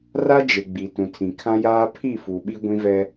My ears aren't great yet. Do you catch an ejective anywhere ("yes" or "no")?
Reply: no